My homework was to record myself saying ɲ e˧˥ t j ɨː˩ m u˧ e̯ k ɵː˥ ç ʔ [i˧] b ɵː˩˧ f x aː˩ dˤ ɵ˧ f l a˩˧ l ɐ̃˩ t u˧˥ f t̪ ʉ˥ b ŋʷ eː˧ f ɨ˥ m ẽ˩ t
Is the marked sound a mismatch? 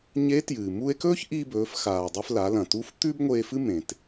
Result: no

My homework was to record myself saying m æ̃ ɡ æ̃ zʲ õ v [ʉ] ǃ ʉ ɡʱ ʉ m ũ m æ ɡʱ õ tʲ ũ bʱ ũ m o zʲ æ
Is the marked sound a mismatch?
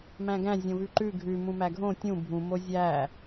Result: no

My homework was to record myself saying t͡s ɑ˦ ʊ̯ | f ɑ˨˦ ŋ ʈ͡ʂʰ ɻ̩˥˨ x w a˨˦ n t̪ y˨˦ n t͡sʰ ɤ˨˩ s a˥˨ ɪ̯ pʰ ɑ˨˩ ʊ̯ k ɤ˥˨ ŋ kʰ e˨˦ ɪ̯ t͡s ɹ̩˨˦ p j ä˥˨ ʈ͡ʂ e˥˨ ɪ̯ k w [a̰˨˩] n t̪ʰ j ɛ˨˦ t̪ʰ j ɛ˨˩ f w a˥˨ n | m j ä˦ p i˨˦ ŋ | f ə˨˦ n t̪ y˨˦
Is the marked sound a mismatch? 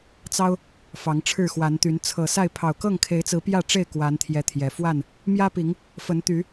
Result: yes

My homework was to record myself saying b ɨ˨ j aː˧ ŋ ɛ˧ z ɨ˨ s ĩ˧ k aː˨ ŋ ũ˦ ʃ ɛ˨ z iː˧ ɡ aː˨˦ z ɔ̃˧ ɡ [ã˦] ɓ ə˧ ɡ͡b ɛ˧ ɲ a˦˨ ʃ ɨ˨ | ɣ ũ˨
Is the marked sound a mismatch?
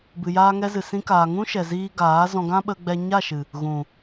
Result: no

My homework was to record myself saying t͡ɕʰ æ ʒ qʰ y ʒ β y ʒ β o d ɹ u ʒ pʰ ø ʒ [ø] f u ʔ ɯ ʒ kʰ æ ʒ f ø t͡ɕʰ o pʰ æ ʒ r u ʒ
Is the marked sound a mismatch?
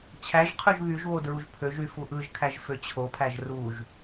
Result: yes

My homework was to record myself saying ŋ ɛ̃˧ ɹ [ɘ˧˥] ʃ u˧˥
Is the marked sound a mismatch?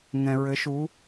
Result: no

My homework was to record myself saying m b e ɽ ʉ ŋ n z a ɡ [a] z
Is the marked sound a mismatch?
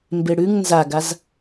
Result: no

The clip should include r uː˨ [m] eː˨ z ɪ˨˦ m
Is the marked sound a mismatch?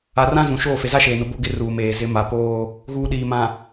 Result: no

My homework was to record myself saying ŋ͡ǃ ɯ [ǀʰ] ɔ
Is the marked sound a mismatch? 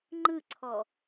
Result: no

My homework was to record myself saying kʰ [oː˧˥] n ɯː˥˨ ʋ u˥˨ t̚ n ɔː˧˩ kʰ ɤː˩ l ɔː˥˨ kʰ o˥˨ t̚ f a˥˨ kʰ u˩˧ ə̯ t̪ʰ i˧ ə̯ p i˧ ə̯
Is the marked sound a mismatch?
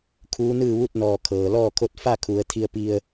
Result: yes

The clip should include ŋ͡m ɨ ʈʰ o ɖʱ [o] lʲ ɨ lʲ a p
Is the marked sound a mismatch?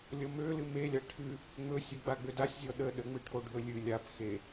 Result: yes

